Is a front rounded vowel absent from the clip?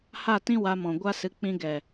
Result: yes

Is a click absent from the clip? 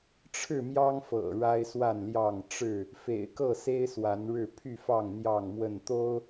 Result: yes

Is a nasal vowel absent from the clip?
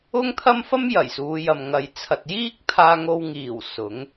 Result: yes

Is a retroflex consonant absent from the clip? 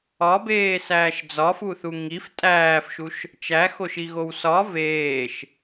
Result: yes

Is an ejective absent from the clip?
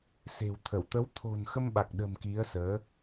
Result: yes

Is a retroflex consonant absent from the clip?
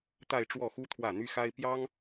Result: no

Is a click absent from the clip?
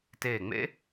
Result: yes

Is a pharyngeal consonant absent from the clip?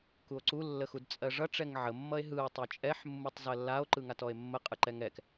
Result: no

